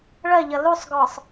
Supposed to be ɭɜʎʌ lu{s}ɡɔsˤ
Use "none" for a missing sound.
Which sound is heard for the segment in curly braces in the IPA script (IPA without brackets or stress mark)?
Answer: sˤ